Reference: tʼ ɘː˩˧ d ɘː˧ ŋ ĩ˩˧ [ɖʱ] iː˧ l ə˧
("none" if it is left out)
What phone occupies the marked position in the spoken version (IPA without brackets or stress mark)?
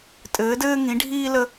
ɖʱ